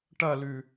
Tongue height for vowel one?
low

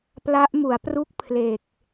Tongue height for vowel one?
low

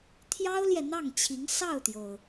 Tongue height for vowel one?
low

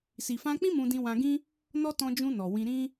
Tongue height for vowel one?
high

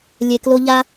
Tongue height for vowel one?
mid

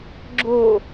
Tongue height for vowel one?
mid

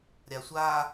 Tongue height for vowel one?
low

